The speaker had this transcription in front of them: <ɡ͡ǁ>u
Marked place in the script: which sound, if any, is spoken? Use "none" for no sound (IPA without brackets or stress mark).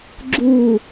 ɡ͡ǁ